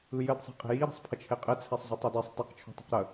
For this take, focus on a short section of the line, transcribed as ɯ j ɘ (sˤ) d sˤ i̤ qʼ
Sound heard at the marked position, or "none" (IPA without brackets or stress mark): none